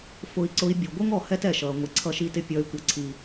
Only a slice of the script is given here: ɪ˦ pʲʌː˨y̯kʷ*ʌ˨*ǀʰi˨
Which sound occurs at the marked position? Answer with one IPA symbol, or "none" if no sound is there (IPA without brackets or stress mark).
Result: ʌ˨